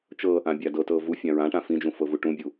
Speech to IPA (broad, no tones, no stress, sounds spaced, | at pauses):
t͡ʃ ɤ | ã bʲ a d ɤ t ɤ v u fʲ ã ɹ ã ʈ ã f ĩ d͡ʒ ũ f ɤ v u ʈ ũ bʲ u